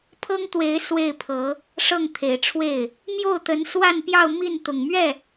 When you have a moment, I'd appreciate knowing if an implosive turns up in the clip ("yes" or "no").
no